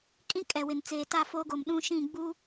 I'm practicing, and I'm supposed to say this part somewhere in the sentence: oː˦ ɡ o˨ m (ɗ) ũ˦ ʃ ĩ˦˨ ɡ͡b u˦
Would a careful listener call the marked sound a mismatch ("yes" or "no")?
no